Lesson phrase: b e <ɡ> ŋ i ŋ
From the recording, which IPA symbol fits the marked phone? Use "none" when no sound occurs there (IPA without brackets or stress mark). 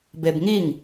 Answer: b